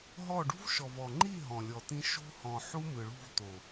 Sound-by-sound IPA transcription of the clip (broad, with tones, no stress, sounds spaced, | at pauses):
ɦ ɔ˦˨ ɖ ṳ˦ v ʃ ɔ˨ v ɔ˨ ŋ͡ǃ i˦˨ ɦ ɔ̃˨ lʲ ɔ˨ t ĩ˧ ʃ o̤˦ h ɔ̃˨ ħ u˦ m ɯ˨ ɭ ṳ˦˨ v t o˨